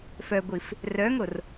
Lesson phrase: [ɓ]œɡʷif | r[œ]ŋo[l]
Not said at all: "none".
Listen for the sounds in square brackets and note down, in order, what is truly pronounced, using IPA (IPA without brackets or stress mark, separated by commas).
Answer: f, œ, r